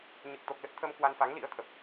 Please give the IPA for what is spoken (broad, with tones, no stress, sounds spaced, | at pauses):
ɲ ɨ˨˩ k̚ t̪ o˨˩ k̚ l ə˦˥ t̚ t̪ʰ ə˧ m k w a˧ n f a˨˦ ŋ l ḭ˧˥ ə̯ t̪ʰ ə˨˩ p̚